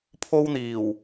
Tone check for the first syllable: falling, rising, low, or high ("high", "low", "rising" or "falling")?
high